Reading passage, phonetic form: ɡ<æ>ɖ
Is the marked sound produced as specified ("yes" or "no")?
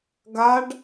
no